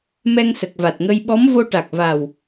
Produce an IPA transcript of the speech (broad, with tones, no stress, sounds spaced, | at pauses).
m ɛ˧ ŋ s ə˨˩ k̚ v a˨˩ t̚ ŋ ə˧ j ɓ ɔ˧˥ m v o˧ ʈ a˨˩ k̚ v a˨˩ w